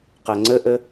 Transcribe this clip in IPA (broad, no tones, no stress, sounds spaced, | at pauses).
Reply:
q ɐ ŋ͡ǀ ə ʔ ə